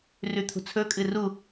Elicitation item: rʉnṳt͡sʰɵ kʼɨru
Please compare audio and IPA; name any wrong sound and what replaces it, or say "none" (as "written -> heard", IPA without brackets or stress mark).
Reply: n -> t̪ʰ